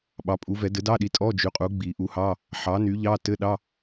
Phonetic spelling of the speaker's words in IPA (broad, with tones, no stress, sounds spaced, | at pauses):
ɓ ɑ˩˥ pʼ u˩˥ v ɛ˨˩˦ d ɘ˩˥ d ɑ˧˥˧ ɗ i˩˥ tʼ ɔ˧˥˧ d͡ʒ y˩˥ qʼ u˩˥ ɡ͡b i˨˩˦ ʔ u˩˥ h ɑ˧˥˧ | ħ ɑ˩˥ n y˩˥ ʎ ɑ˧˥˧ t ɘ˧˥˧ ɗ ɑ˧˥˧